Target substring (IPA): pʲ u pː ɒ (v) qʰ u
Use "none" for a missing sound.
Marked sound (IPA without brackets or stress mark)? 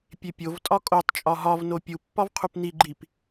v